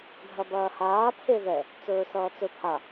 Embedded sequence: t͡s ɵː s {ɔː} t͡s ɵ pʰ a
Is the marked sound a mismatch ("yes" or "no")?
yes